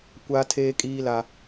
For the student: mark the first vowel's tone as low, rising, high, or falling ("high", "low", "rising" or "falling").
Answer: high